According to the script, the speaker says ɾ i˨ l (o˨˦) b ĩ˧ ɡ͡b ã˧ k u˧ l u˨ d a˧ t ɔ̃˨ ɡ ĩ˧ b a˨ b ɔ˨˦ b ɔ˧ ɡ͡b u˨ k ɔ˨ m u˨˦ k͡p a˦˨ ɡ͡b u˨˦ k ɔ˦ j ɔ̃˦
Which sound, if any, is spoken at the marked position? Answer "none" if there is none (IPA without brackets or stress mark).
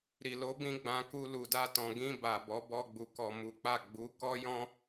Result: o˨˦